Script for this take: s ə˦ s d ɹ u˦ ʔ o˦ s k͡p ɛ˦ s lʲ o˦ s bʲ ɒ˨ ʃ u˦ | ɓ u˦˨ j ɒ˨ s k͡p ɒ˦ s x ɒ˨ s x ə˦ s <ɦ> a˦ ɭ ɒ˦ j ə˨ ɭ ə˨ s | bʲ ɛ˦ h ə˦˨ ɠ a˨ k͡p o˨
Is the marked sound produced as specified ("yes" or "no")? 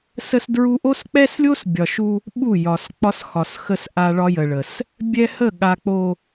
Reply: no